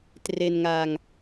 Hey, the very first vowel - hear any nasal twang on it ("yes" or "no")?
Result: no